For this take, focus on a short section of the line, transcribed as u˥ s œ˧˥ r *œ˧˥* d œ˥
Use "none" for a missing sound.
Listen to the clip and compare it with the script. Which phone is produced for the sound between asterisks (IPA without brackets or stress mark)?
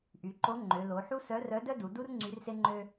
œ˧˥